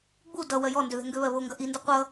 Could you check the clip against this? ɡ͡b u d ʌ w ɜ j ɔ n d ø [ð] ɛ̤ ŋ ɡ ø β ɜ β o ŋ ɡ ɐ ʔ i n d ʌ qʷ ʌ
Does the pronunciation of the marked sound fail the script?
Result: no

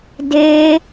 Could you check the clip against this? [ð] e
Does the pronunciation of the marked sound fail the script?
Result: yes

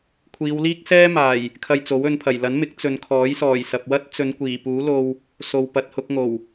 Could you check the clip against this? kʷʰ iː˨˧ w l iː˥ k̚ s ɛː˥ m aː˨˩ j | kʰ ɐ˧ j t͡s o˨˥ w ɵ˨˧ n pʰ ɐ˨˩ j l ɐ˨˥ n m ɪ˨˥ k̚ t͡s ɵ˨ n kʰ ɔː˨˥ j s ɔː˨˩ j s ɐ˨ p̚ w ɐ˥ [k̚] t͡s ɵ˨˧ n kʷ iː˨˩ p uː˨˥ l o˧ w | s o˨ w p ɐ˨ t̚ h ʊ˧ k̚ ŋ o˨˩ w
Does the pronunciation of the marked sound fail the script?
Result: yes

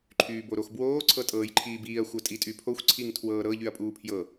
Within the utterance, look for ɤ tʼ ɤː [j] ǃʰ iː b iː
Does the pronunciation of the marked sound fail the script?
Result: no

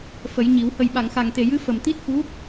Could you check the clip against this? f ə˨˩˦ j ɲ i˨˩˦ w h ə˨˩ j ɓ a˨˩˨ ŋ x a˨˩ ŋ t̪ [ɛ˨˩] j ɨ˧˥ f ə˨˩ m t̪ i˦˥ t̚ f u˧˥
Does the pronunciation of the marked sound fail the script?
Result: yes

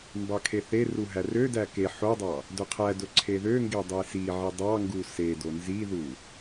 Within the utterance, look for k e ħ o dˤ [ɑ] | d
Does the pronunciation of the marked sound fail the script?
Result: no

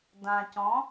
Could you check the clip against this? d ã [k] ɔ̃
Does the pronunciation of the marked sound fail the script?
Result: yes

